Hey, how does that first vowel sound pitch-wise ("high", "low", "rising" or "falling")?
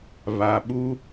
low